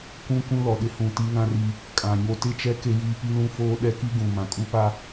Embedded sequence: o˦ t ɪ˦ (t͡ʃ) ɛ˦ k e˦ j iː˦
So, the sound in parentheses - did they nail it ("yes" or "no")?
yes